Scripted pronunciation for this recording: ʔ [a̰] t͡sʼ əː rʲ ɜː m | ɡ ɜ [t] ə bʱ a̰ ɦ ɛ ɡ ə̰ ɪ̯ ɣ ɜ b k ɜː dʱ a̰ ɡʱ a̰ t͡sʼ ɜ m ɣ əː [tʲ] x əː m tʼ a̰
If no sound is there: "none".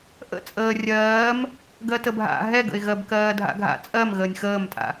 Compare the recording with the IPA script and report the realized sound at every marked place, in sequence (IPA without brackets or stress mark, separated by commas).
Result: ə̰, t, nʲ